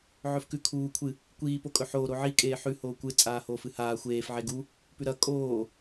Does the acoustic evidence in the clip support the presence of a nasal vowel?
no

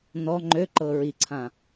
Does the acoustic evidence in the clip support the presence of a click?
yes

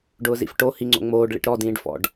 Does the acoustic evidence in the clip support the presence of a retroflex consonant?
yes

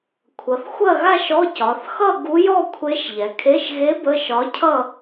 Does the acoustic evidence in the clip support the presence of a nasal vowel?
no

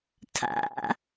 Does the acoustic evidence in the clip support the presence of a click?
no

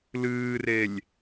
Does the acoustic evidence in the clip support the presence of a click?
no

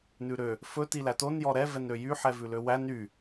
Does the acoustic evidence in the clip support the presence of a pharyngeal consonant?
yes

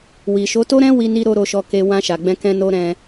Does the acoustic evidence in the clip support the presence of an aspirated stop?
no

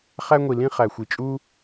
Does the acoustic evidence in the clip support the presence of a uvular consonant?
yes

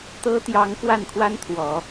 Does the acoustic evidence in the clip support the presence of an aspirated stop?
yes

